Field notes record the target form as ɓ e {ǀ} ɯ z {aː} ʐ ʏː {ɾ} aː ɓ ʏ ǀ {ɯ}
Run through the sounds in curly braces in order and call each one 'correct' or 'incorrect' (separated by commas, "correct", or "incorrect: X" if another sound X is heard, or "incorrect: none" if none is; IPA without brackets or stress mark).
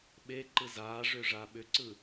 incorrect: ǃ, correct, incorrect: ʐ, correct